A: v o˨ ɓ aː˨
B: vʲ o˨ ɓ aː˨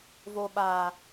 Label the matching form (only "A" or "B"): A